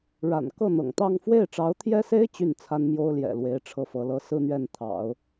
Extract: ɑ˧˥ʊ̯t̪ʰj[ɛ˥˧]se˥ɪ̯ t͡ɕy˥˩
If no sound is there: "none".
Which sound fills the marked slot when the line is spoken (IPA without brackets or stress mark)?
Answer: ɛ˥